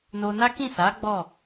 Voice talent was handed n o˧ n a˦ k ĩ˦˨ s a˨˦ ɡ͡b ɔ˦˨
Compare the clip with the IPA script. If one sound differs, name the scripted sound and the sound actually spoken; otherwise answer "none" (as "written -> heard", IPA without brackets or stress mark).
none